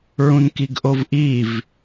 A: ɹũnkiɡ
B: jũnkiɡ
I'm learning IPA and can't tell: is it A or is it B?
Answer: A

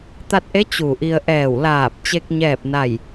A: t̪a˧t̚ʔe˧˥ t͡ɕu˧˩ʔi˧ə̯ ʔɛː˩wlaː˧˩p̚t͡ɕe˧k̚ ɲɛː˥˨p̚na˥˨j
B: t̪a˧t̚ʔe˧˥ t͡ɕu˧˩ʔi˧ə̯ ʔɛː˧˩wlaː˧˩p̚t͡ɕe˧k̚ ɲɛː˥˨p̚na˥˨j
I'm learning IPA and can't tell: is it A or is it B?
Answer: B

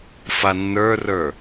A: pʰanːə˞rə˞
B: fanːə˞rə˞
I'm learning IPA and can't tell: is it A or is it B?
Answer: B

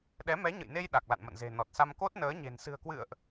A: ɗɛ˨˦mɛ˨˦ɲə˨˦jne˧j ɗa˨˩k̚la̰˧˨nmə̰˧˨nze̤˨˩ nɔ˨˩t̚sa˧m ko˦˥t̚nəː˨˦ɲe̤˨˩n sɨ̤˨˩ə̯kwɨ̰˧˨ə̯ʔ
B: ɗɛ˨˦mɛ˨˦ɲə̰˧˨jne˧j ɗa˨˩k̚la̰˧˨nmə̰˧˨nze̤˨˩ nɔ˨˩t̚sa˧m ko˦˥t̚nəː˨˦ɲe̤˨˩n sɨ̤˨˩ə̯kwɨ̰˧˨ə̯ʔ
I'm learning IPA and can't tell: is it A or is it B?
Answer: B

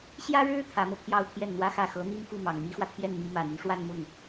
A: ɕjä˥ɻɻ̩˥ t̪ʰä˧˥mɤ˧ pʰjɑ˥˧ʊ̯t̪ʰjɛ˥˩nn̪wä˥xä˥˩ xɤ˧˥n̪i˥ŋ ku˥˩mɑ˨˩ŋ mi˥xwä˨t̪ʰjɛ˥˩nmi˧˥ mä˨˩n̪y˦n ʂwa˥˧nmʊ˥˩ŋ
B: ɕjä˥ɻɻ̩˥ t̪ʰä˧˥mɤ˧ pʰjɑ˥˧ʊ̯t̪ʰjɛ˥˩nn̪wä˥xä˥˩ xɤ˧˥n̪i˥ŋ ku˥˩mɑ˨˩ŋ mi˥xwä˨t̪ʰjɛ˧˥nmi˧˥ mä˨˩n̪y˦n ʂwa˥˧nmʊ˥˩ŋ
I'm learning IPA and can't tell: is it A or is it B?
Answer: A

